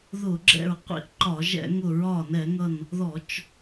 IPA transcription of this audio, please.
ð ʊ˧˩˧ ɡ͡ǁ ɛ̰˧˩ ɹ qʷ ḭ˧˩ ʔ ǃ ɒ˧˩˧ ʒ ɛ̰˧˩˧ ŋ ʊ˧˩ ɹ ɒ˧˩ n ɛ˧˩˧ ŋ ʌ˧˩ n | ð ɔ˧˩˧ t͡ʃ

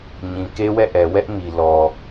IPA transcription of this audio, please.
ɲ ĩ˨ k e˦ w ɛ˦˨ ʔ ɛ˨ w ɛ˦ ʔ m i˨ l ɔ˨

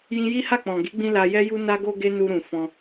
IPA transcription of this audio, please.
j ĩ˧ j i˦ h a˦˨ k͡p ɔ̃˨ ɡ i˨˦ ɡ͡b ĩ˧ l a˧ j ɛ˦ j u˦ n a˦ ɡ o˦ ɡ e˦ n u˧ ɾ ũ˨ f ɔ̃˧

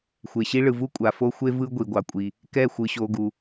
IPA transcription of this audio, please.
xʷ e˨ ɕ i˦ ɭ ɯ˨ v u˦ kʷʼ a˨ f o˦ xʷ e˦ v ɯ˦ ɡʷ i˨ ɡʷ ɑ˨ kʷʼ i˨ | k ɛ˦˨ xʷ ɯ˨ ɕ o˨ ɡ u˨

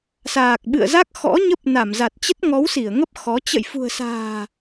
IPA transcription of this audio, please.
s aː˨˩ k̚ ɓ ɨ̰˧˨ ə̯ z a˦˥ k̚ x ɔ̰˧˥ ɲ ə˦˥ p̚ n a˧˩ m z a˨˩ t̚ t͡ɕ ə˦˥ t̚ ŋ ɔ˨˦ w s i˧˩ ə̯ ŋ ə˦˥ p̚ x ɔ˨˦ t͡ɕ ə̰˧˨ j f ṳ˨˩ ə̯ s a̤ː˨˩

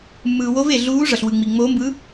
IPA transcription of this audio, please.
mː ɯː˨ w o˧˥ v e˨ ɮ uː˧˥ ʐ ʌ˨ ɬ w ɯ˨ ŋ͡m i˨ ŋ͡m oː˧˥ m b ɯ˧˥

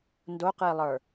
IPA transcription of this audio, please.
n d o q ɨ i̯ lˠ ə˞

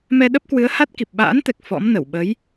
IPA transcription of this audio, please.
m ɛ˧ ɗ ə˦˥ p̚ k w ɨ˨˦ ə̯ h a˦˥ t̚ k i˨˩ p̚ ɓ a̰ː˧˥ n t̪ ɛ˨˩ k̚ f ɔ̰˧˥ m n ə˧˩ w ɓ ə˨˦ j

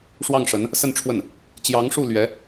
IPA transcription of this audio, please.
ʂ w ɑ˥˩ ŋ ʂ ə˧˥ n | s ə˥˧ n ʈ͡ʂʰ w ə˥˩ n | t͡ɕ j ɑ˧˥ ŋ ʂ u˥˩ l ɥ ɛ˧˥

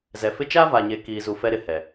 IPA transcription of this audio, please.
z ɛ˨ f ɪ˦ t͡ʃ a˦ v a˨ ɲ e˨ k iː˨ z u˨ f ɛ˦ ɾ ɪ˨ h ɛ˨

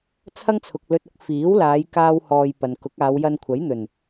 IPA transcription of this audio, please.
t͡sʰ ɐ˥ ŋ t͡sʰ ʊ˨ k̚ l ɵ˧ t̚ ʊ˥ k̚ f iː˨˥ w l aː˨˧ j k aː˥ w h ɔː˧ j p ɐ˨ n k ʊ˨˥ k̚ aː˨˧ w j ɐ˧ n kʷʰ ɐ˨˥ j n̪ ɵ˨˩ n

